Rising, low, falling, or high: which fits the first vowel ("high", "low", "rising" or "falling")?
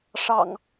low